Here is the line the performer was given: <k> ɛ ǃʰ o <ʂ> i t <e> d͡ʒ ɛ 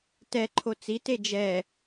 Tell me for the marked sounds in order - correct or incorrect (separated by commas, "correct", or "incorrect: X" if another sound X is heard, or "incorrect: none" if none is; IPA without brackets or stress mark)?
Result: incorrect: t, incorrect: t͡s, correct